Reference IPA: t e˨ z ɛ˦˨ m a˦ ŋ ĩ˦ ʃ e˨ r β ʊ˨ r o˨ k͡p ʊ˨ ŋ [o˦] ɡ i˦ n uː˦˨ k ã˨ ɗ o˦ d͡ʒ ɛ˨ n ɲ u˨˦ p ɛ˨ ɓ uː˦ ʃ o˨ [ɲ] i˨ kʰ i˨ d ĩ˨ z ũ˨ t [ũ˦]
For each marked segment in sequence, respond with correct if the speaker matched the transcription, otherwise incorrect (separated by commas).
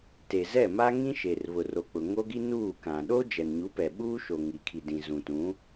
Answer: correct, incorrect, incorrect